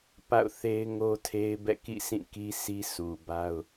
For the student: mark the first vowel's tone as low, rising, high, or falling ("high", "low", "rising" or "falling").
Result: falling